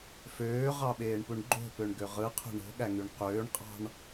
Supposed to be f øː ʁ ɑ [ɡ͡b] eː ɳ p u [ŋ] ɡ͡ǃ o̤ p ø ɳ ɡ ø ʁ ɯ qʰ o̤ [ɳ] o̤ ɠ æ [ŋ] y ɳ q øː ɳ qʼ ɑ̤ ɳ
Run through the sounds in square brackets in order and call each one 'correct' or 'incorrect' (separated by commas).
incorrect, incorrect, correct, correct